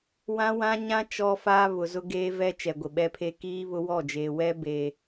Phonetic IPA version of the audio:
w ã˦ w ã˦ ɲ ã˦ t͡ʃ ɔ˦ f aː˦ β ʊ˨ z ʊ˦ ɡ eː˦ v ɛ˦ t͡ʃ ɛ˨ ɡʷ ɪ˨ ɓ ɛ˦ pʰ e˦ k iː˦ β ʊ˦ w ɔ˦˨ d͡ʒ eː˨ w ɛ˦ b eː˨

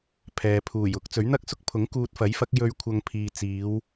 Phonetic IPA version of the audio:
pʰ ɛː˨ pʰ uː˨˩ j ʊ˨˥ k̚ t͡s ɵ˨˥ ɥ n̪ ɐ˥ k̚ s ʊ˥ k̚ pʰ ʊ˨˥ ŋ k uː˧ t̚ f ɐ˨˥ j f ɐ˨˥ k̚ j ɵ˥ ɥ kʷʰ ɐ˧ ŋ pʰ iː˨ t͡s iː˨˧ w

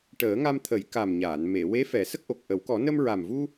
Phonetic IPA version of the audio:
ʈ əː˨˩˦ ŋ a˧ m t̪ʰ ə˨˩˦ j k a˨˩ m ɲ aː˨˩˨ n m e˨˩˨ w e˧˥ f ɛ˨˩˦ s ə˦˥ k̚ ʔ o˨˩ k̚ ʔ ə˨˩˦ w k ɔ˨˩˦ n ə˧ m ɹ a˨˩ m v u˧

